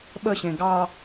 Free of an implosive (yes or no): no